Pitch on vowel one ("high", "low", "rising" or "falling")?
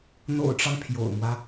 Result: low